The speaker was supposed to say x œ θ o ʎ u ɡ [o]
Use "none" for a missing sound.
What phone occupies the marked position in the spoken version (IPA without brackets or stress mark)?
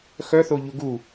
u